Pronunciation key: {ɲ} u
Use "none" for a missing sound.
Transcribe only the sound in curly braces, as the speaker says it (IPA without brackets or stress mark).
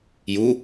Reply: j